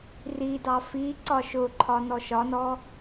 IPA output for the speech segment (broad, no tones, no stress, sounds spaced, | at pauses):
r i d ɑ f i ǀ ɒ ʃ ʊ ǃʰ ɒ n ɔ ʃ ɒ n ɔ